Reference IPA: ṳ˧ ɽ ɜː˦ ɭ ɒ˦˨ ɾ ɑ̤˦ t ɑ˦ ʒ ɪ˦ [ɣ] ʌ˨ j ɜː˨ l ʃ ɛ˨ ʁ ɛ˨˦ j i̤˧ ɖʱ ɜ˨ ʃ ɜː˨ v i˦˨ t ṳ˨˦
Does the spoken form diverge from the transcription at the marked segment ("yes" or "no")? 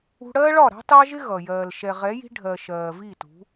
no